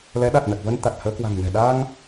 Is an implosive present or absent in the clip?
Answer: present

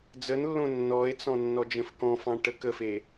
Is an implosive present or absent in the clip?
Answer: absent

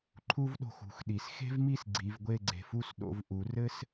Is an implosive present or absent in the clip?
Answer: present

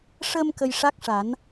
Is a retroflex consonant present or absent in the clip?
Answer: present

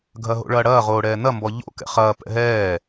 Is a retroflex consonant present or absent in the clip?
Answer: present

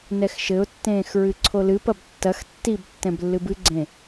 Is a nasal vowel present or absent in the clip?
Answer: present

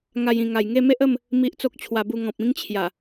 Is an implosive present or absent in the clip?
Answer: absent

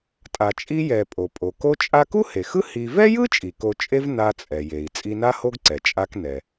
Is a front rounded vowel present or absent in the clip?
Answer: absent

